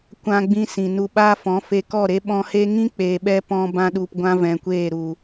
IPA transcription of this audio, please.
kʷ ã˧ ɡ͡b ĩ˧ s ĩ˨ n u˧ ɓ aː˦ f ɔ̃˨˦ f e˧ k ɔ˦˨ ɾ e˦ ɓ ɔ̃˧ h e˦ ŋ ĩ˦ k͡p eː˨ ɓ ɛ˧ p ɔ̃˧ b ã˧ ɗ u˨ p ɡʷ ã˦ v ɛ̃˨ kʷ eː˦˨ ɾ u˨

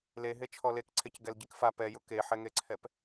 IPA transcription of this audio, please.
l e ɦ e t͡ʃʰ ɔ l e k ǀʰ e c ɡ ɛ l ɟ i k f a p ɛ j ʊ k e ħ ɛ ŋ e ǀʰ ɛ p

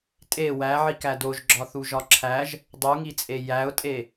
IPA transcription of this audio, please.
tʼ e w æ ʕ i k æ d o ʒ ɡ͡ǁ ɒ θ u ʒ ɒ ǁʰ æ ʒ | dˤ u ŋ i t͡sʼ e j æ ʊ̯ tʼ e

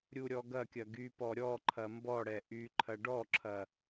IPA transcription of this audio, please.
ɾʲ u ɾʲ ɔ ɡ ɐ kʲ ɐ ɡ y p ɔ ɾʲ ɔ ǃʰ ɐ m b ɔ ɽ ɛ ʔ y ǃʰ ɐ ɖ ɔ ǁʰ ɐ

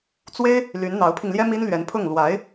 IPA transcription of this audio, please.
t͡s w e˥ ɪ̯ | l y˧˥ n n̪ ɑ˧˥ ʊ̯ pʰ i˧ ŋ l j ɛ˥ m i˥ n l ɥ ɛ˧˥ n pʰ ʊ˥˩ ŋ l w a˧˥ ɪ̯

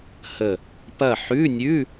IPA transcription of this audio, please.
h ə˧˩ | p ɐ˥˨ ħ ʉ˧˥˧ nʲ ʉ˧˥˧

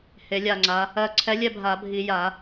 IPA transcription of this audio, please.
h e˩˧ lʲ a˧˩ ŋ͡ǀ a˩˧ | ɜ˧˩ ǀʰ ɛ˨˥ lʲ ɛ˥˨ bʱ a˧˩˧ bʱ i˧˩˧ j a˧˩˧

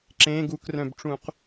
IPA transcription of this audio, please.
ǁ ẽ ɡ u k r œ̃ b ʈ͡ʂ ũ q

